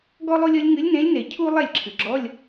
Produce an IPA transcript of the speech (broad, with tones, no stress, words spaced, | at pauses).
ɡɔ˥lˠo˥lʲɔ˧˥lʲ ŋɨ˧˥lʲnẽ˧˥lʲne˨˩˦ cʰu˥ lˠɛ˥˩lʲǁʰɨ˩ɡ͡ǁɔ˧˥˧lʲ